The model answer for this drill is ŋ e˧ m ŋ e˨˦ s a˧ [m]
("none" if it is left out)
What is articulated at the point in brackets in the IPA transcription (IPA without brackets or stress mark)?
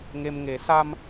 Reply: m